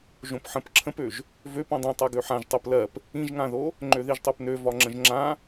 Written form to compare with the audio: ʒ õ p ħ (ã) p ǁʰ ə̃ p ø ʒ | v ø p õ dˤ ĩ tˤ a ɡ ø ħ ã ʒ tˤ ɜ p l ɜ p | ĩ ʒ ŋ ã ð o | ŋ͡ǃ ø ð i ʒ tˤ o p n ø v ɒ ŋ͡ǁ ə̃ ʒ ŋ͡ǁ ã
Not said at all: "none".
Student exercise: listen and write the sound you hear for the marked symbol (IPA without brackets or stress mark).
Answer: ə̃